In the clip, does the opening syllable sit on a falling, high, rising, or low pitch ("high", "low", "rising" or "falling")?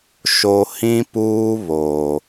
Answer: low